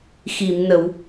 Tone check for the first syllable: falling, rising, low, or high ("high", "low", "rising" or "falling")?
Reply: low